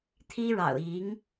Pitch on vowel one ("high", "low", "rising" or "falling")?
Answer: high